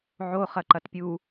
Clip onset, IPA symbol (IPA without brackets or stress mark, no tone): ʕ